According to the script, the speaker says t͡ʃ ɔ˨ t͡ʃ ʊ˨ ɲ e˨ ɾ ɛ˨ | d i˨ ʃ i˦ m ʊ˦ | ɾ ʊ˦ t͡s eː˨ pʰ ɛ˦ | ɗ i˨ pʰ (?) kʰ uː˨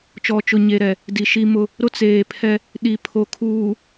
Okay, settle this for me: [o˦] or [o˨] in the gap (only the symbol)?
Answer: o˨